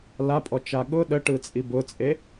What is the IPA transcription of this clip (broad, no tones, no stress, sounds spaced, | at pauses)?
l a pʼ ɔ t͡ʃ a ɠ ʊ ɗ ə ʈ ɯ t͡sʼ i b ʊ t͡sʼ e